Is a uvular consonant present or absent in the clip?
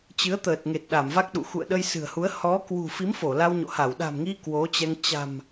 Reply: absent